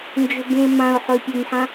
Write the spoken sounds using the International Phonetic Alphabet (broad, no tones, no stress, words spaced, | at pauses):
nd͡ʒɵbẽmãʊ̯ ħɵɪ̯pʲɵmħã